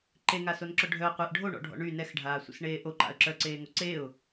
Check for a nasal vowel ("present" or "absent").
absent